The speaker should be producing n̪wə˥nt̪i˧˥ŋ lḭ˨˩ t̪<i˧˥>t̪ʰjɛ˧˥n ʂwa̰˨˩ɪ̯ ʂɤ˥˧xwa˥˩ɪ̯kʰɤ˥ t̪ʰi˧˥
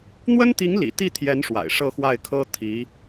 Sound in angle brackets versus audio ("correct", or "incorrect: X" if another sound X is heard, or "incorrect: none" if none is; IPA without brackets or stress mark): incorrect: i˥˩